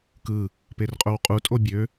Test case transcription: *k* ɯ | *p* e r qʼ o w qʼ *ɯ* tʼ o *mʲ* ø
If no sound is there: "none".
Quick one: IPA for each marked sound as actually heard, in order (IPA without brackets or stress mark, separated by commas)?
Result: k, p, u, bʲ